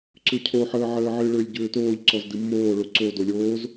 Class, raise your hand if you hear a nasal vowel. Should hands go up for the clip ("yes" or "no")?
no